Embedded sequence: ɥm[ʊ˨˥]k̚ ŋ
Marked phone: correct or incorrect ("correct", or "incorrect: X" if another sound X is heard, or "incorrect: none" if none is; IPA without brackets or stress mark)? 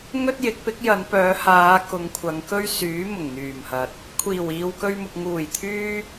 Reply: incorrect: ʊ˨